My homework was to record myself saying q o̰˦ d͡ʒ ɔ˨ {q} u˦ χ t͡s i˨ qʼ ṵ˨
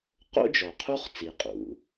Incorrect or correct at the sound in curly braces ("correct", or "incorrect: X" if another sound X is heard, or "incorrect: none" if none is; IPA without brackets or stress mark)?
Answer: incorrect: qʰ